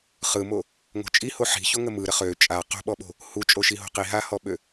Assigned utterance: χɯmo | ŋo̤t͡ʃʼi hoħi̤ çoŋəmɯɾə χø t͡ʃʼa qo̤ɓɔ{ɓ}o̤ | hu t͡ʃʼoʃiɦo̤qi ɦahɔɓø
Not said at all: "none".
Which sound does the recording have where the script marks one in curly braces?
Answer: ɓ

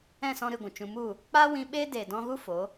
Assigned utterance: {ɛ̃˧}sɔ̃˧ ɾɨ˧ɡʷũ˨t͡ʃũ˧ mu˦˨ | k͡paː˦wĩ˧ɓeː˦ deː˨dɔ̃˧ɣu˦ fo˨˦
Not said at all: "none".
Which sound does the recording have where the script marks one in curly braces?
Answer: ɛ̃˦˨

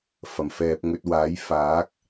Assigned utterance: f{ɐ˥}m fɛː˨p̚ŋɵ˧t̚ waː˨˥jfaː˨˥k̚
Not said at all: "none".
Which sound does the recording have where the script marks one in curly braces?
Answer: ɐ˨˩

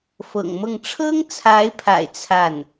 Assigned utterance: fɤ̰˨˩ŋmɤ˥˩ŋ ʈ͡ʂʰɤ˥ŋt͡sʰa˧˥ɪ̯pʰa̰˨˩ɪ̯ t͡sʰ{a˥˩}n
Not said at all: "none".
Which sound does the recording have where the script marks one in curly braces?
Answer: a˥˩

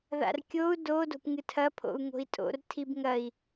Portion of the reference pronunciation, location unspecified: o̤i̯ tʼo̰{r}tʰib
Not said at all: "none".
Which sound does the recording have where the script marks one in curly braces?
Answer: r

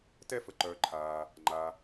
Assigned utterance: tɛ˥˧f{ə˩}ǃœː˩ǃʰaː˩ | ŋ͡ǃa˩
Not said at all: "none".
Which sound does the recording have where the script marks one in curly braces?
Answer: ə˩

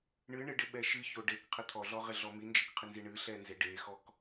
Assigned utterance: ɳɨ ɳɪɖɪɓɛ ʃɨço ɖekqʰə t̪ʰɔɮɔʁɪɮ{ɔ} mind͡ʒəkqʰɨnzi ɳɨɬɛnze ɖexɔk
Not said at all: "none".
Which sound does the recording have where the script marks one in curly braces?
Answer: ɔ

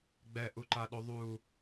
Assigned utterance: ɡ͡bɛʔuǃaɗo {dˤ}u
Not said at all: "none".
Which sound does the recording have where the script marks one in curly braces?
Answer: ðˤ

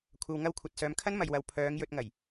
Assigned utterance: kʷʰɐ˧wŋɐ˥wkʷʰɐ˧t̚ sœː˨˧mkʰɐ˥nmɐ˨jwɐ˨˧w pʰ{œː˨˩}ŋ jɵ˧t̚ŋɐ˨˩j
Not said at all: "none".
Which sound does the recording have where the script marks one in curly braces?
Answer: œː˨˧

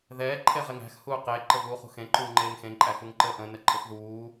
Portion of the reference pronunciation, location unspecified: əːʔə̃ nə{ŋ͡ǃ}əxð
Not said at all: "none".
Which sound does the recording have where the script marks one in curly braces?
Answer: ǃʼ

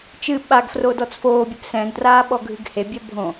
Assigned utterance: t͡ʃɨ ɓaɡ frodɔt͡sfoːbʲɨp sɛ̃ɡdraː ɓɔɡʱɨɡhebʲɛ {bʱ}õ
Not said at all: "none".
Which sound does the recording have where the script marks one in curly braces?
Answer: bʱ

